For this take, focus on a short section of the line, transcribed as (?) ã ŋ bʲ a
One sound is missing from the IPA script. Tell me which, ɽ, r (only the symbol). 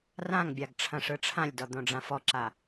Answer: r